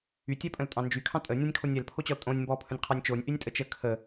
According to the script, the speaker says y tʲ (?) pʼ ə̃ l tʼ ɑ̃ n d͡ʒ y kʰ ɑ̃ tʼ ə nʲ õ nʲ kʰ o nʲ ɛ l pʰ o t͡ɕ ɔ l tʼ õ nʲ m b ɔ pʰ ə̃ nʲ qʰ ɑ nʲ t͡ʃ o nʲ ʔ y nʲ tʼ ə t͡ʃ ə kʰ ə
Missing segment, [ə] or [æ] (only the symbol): æ